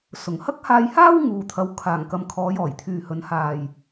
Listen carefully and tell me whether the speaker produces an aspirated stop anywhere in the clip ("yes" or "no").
yes